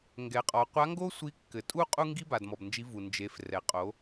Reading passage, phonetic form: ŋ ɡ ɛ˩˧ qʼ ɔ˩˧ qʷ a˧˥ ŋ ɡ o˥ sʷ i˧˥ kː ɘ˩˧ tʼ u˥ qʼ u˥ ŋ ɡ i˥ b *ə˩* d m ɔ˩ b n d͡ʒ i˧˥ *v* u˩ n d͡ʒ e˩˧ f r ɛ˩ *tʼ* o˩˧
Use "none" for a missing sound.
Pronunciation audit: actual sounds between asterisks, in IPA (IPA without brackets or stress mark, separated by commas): a˩, v, qʼ